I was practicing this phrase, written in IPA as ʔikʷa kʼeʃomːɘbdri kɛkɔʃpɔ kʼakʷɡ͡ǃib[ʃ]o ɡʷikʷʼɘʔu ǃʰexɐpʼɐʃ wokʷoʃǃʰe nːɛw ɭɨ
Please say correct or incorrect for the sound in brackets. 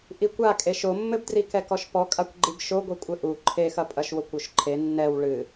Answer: correct